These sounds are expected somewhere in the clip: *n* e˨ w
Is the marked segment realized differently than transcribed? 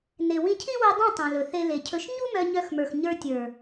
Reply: no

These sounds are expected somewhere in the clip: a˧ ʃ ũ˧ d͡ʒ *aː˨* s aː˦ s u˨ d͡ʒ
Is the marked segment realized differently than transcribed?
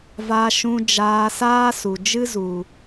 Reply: yes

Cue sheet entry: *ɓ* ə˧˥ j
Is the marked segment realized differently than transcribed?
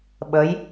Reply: no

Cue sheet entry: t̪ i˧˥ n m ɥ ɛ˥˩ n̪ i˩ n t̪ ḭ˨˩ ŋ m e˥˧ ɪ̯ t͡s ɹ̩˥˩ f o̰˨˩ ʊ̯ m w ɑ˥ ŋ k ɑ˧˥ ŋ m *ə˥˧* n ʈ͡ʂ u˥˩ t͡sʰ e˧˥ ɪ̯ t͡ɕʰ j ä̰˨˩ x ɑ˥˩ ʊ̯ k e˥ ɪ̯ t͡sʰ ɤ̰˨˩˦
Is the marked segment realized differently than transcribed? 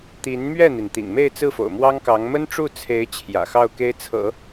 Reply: yes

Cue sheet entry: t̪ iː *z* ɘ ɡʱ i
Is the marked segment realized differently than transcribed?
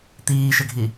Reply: yes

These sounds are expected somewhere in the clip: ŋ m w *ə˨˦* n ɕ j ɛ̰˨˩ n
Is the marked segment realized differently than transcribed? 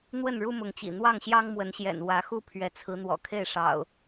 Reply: no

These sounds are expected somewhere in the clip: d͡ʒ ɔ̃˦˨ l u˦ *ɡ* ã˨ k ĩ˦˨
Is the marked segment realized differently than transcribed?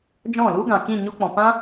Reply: no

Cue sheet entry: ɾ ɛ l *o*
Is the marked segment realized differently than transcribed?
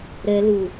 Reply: yes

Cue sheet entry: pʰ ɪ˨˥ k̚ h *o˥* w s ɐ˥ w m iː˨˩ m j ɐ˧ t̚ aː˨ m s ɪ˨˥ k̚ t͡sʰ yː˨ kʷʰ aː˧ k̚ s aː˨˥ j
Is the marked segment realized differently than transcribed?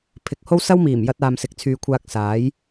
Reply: no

